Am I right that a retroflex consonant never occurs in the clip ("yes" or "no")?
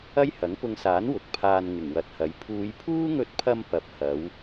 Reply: yes